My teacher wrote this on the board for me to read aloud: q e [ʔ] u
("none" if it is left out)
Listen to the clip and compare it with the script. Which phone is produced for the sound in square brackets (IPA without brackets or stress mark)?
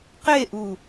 ʔ